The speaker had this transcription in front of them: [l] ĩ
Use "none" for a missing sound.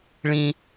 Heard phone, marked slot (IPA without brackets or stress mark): ɭ